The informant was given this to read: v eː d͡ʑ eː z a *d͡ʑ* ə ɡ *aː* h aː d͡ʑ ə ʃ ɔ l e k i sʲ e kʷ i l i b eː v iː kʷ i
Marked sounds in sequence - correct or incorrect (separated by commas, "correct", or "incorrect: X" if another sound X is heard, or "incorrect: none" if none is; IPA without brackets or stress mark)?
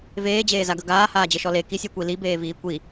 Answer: incorrect: ɡ, correct